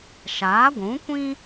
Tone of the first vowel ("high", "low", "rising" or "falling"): rising